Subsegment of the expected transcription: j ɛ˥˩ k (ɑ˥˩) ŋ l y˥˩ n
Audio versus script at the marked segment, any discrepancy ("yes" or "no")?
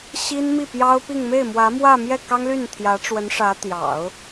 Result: yes